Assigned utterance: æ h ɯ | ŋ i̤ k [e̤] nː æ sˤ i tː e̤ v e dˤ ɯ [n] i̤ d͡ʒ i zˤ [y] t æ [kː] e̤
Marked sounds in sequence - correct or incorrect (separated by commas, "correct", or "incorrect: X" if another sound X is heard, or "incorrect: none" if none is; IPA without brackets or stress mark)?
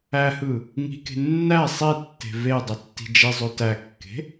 correct, incorrect: tː, incorrect: ø, correct